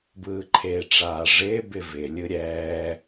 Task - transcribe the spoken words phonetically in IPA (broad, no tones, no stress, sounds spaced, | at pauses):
b ɯː ǃʰ eː ʈ͡ʂ aː ʐ ɪː b ɪ v ɪ lʲ ɯ ɾʲ ɛː